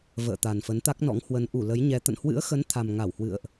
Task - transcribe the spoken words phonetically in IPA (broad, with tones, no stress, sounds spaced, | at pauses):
v ə̰ː˧˨ t̪ a˨˩ n f ə˨˦ n t̪ a˦˥ k̚ n ɔ̰˧˥ ŋ h w ə˨˦ n ʔ u˧˩ l ə˨˦ j ɲ ɛ˧ t̪ ə̰˧˨ n h w ɨ̰˧˥ ə̯ x ə˨˦ n t̪ʰ a˨˩ m ŋ a˧˩ w h w ɨ̰˧˨ ə̯ ʔ